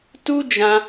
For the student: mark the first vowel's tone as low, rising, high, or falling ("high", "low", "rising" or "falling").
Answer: high